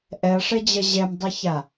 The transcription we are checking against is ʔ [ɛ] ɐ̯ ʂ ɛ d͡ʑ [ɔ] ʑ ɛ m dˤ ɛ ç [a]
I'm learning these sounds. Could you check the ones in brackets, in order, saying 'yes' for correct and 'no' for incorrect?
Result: yes, no, yes

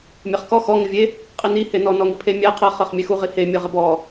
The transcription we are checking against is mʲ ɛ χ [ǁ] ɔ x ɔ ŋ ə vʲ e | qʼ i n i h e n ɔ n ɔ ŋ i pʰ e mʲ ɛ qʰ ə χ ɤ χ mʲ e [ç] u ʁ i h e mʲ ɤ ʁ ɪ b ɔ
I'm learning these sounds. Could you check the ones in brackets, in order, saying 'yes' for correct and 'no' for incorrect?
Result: no, no

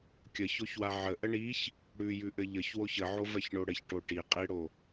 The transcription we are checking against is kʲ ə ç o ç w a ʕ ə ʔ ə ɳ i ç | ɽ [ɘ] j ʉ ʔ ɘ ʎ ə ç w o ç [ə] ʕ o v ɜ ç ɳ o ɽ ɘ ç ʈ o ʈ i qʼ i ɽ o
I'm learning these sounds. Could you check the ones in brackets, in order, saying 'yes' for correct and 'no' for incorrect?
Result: no, yes

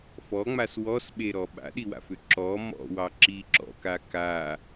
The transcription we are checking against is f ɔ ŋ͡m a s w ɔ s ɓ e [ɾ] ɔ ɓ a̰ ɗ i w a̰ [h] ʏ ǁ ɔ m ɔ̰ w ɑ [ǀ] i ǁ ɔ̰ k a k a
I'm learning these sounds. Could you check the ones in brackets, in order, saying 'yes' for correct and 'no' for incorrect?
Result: yes, no, no

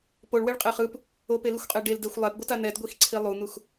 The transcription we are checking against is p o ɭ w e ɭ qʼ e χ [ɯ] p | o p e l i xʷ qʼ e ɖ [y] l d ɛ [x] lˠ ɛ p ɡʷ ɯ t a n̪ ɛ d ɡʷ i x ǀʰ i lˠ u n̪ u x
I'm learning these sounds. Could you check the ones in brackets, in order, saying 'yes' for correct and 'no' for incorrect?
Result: yes, no, no

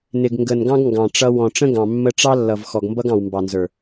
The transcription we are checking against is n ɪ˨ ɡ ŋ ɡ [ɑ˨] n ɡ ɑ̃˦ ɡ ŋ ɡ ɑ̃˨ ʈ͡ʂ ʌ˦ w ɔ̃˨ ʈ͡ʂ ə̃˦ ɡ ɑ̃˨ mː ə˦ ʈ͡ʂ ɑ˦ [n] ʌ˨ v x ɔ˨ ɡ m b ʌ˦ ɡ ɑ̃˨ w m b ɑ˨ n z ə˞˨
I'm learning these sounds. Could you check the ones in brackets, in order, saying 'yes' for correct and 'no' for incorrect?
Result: no, no

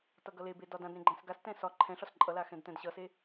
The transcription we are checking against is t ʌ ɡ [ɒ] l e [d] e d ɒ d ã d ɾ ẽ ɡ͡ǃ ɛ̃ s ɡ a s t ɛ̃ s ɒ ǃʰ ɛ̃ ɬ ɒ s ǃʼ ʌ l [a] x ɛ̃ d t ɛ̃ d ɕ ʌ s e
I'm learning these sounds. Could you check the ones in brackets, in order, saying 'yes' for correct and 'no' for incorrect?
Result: no, no, yes

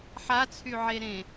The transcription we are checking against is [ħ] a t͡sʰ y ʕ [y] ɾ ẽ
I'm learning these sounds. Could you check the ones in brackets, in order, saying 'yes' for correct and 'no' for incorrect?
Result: yes, no

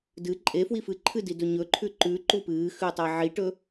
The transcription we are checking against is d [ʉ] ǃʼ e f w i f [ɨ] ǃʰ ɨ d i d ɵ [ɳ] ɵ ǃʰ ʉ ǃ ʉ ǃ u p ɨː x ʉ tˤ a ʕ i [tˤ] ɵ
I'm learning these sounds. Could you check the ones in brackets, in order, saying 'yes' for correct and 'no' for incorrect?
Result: no, yes, no, no

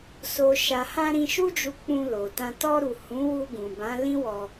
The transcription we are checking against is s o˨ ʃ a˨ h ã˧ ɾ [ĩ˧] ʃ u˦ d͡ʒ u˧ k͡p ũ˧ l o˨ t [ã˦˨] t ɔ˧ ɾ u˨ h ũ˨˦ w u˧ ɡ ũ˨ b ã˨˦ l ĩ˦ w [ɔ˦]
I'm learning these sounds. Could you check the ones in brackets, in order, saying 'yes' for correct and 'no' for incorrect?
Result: yes, no, no

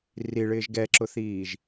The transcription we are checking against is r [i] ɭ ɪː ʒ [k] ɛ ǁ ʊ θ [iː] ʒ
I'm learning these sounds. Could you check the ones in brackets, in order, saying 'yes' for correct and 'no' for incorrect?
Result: yes, no, yes

